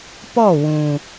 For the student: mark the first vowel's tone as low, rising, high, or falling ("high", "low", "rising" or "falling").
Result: falling